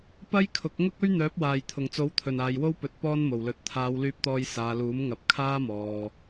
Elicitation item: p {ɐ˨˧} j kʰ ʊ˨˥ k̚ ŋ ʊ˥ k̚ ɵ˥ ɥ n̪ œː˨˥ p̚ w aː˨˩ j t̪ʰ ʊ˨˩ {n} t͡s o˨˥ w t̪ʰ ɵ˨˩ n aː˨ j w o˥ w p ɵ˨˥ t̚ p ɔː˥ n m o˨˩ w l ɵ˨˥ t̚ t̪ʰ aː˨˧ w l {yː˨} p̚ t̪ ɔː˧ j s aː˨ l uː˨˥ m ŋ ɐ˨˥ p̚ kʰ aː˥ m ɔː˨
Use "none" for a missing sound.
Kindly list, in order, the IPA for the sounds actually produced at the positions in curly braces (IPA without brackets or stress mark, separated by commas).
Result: ɐ˥, ŋ, yː˧